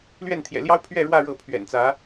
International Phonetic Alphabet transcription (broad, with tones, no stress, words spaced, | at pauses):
lɥɛ˥˩nt̪ʰjɛ̰˨˩ljɑ˥ʊ̯ pʰɥɛ˥˧ɻwä˥˧ ɻɤ˥˩ pʰɥɛ̰˨˩nt͡sä˧˥